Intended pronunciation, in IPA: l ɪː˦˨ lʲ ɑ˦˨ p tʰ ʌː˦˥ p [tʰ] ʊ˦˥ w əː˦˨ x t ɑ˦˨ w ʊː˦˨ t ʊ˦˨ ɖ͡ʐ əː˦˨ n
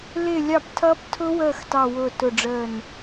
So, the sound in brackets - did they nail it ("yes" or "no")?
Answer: yes